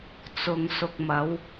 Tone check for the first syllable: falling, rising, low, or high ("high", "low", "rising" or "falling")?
low